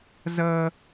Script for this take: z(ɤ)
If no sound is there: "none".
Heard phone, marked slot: ɤ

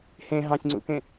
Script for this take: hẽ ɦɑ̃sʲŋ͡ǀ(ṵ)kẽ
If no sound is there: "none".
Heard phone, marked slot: ṵ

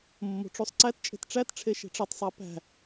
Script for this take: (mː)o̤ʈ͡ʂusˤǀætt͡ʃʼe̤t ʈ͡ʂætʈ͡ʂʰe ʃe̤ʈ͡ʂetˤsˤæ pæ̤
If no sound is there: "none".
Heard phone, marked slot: mː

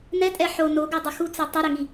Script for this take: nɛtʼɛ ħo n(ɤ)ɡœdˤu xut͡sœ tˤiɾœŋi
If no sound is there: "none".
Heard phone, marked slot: o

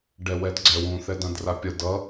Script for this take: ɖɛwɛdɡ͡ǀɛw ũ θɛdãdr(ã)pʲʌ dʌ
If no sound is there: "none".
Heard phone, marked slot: a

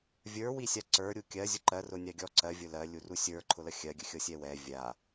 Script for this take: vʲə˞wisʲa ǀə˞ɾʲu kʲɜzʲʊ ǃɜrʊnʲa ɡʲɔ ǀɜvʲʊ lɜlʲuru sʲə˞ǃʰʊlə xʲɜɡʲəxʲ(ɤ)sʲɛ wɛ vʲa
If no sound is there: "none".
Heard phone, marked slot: ɤ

